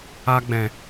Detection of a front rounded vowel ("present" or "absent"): absent